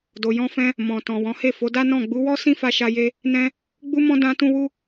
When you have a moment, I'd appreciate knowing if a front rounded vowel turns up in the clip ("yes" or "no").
no